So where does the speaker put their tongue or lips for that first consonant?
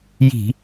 palate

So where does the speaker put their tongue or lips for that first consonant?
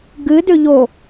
velum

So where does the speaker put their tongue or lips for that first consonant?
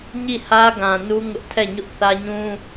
palate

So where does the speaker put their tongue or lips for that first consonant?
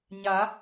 palate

